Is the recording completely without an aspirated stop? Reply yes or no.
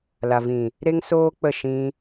yes